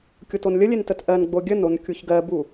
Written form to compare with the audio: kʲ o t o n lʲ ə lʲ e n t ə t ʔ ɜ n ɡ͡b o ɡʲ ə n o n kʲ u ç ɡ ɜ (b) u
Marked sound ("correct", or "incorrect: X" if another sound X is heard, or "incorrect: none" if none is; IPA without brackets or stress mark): correct